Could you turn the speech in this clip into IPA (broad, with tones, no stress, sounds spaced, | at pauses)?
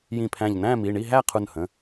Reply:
j ĩ˧˩ pʰ æ̃˧˩ ʎ n æ̃˥˨ m i˩˧˩ ɳ i˥˨ ɦ æ˥˨ qʰ u˧˩ n h ə̃˩˧˩